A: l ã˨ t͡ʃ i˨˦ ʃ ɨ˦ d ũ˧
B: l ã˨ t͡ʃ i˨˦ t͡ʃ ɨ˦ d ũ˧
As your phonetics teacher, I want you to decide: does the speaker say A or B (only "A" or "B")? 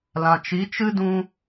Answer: B